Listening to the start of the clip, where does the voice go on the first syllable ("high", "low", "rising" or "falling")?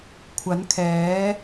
rising